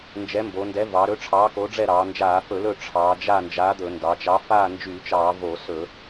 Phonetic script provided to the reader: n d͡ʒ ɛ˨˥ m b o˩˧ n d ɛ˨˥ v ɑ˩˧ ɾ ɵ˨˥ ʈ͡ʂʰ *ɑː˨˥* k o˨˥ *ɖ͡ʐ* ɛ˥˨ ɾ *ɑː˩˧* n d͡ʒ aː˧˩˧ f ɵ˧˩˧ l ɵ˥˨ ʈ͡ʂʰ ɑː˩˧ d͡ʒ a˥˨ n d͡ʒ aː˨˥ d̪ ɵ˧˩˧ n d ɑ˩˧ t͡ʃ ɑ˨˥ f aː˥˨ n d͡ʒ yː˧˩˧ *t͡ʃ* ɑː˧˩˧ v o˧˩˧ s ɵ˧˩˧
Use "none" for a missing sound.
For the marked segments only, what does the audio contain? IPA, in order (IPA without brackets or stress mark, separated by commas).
ɑː˨˥, ɖ͡ʐ, ɑː˩˧, t͡ʃ